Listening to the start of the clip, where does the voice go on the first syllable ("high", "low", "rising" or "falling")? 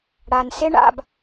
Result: low